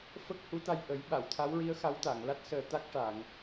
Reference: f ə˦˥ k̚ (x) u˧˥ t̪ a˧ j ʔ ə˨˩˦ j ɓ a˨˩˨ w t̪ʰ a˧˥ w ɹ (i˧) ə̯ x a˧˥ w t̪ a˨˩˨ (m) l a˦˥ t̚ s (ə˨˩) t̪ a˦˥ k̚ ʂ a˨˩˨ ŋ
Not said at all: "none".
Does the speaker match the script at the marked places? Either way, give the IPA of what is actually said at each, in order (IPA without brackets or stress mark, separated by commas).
h, i˧˥, ŋ, əː˨˩